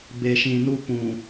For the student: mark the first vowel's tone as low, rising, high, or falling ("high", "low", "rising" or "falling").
low